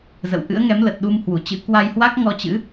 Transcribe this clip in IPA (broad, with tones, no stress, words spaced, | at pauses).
zə̰˧˨wʔɨ̰˧˥ə̯ŋɛ˨˦mlə˨˩t̚ ɗu˧mhwu˧˩t͡ɕɨ̰˧˥ kwa˧jhwa˦˥k̚ ŋɔ˧t͡ɕɨ̰˧˥